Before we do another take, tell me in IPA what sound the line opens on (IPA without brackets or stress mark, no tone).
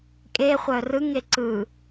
kʼ